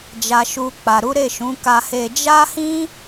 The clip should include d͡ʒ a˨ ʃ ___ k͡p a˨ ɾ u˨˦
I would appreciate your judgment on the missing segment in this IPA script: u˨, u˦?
u˨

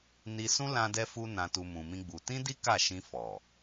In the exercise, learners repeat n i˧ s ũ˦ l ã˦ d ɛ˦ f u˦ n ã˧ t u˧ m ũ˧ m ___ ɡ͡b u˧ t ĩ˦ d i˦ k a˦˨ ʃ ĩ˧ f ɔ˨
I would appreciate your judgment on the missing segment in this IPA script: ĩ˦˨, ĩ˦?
ĩ˦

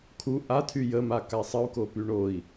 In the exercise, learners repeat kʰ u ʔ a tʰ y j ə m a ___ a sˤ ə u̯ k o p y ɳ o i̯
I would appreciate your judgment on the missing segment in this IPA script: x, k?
k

